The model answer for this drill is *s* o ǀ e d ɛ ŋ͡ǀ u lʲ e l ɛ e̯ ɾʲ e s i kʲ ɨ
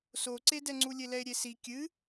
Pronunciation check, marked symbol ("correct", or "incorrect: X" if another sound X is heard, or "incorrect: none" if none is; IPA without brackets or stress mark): correct